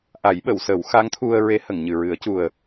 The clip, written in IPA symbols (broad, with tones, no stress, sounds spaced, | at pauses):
ʔ a˨˩˦ j ɓ ə˨˩˨ w s ə˨˩˦ w x a˧˥ ŋ t̪ʰ u˧ ə̯ ɹ e˧˥ h ə˨˩˨ ŋ ɲ ɨ˨˩ ɹ ɨ˨˩˦ ə̯ c u˨˩ ə̯